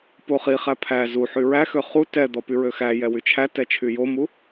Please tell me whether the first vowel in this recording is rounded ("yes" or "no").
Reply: yes